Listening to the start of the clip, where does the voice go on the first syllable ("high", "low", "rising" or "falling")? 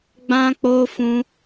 high